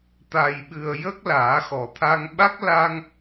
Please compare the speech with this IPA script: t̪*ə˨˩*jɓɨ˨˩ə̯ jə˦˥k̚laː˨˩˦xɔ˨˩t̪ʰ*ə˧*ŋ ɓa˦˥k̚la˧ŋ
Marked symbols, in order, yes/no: no, no

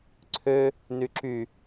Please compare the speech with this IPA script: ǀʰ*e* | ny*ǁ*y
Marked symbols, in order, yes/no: no, yes

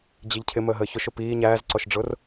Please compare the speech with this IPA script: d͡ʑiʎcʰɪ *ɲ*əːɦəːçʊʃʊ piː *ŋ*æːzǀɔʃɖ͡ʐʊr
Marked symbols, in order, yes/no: no, no

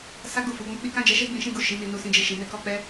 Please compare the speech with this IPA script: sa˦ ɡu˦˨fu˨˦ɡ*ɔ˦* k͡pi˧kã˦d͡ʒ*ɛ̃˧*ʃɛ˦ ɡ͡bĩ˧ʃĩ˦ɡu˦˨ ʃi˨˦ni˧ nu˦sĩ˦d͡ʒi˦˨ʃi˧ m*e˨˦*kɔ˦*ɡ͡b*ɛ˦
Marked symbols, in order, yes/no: no, no, no, no

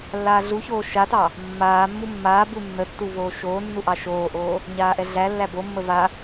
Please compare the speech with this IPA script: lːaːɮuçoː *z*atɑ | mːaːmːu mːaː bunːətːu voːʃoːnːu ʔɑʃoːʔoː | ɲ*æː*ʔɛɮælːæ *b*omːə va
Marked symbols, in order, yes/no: no, no, yes

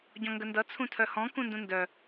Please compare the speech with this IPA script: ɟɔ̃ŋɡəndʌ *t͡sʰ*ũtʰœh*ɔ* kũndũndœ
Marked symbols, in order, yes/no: yes, no

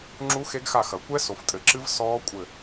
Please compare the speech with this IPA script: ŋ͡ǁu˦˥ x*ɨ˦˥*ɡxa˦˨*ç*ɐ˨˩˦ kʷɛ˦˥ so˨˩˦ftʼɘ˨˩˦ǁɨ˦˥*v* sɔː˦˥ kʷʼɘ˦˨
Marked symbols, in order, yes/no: no, no, yes

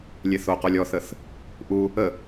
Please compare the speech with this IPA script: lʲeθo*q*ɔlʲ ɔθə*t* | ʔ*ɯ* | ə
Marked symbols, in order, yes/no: yes, no, no

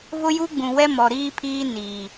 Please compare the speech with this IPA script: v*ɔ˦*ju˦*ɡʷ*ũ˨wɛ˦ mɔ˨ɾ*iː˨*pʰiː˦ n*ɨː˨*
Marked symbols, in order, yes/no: no, no, no, no

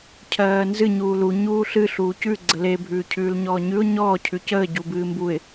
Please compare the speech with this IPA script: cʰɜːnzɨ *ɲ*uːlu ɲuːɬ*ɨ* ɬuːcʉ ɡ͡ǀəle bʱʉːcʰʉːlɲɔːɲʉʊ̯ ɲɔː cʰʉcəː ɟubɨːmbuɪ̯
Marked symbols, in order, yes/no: yes, yes

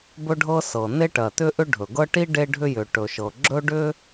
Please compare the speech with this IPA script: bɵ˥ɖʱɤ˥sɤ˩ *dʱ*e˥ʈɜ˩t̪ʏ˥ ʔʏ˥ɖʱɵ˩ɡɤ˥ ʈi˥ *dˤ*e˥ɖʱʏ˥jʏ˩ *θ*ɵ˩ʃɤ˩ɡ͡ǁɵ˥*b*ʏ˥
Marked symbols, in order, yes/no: no, no, no, no

